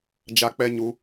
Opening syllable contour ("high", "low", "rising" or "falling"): high